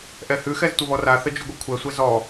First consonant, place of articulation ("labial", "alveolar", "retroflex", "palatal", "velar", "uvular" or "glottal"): glottal